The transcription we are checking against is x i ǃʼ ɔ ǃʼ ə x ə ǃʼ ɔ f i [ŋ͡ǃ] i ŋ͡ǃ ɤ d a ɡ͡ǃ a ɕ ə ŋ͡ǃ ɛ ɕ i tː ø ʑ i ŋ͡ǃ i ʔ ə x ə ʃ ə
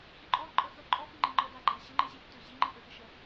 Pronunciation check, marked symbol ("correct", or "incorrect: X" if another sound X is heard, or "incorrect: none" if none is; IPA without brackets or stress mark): correct